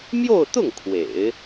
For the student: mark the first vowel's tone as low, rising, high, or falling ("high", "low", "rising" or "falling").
falling